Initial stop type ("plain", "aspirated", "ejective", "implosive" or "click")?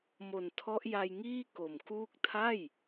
aspirated